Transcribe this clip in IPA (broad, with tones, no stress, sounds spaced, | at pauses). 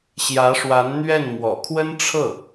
ɕ j ä˧˥ ʂ w a˧˥ n n̪ ɥ ɛ˥˩ n m w ɔ̰˨˩ kʰ w ə˥ n ʈ͡ʂʰ ɤ˥˩